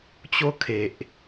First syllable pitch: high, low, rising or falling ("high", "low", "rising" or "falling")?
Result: high